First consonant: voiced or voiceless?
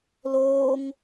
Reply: voiced